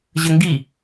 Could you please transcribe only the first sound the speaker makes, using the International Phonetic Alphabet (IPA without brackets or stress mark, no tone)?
ʑ